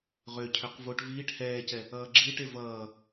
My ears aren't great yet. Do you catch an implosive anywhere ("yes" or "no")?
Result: no